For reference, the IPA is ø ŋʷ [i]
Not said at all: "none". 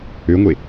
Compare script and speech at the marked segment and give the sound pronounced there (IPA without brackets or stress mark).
e